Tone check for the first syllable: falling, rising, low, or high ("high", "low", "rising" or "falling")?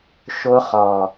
high